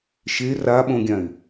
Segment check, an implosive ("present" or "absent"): present